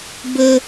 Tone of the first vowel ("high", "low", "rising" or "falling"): high